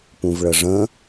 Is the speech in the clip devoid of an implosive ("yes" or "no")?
yes